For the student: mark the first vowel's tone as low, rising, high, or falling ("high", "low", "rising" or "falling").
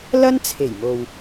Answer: high